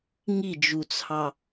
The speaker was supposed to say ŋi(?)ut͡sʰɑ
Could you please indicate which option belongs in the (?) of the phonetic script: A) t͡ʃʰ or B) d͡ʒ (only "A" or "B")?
B